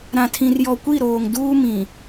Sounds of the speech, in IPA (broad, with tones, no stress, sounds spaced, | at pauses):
ɾ ã˨ tʰ ĩ˨ r j ɔ˨ kʷ i˦˨ ɾ oː˨ ŋ d uː˦ m ĩ˨